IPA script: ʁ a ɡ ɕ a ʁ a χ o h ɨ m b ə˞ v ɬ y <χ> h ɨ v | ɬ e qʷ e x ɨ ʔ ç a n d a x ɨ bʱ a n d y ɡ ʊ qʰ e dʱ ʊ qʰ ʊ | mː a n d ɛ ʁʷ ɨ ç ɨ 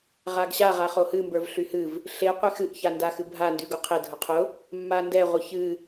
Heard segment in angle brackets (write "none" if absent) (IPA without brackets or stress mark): none